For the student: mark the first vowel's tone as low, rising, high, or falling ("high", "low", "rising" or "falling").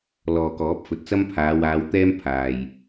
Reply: low